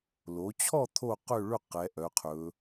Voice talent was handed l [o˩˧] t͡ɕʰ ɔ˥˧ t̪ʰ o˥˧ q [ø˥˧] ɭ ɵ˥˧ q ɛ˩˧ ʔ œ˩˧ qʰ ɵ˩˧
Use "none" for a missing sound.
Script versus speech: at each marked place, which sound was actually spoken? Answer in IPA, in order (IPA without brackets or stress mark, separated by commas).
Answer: o˩˧, ø˥˧